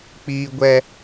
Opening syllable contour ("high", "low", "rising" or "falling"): low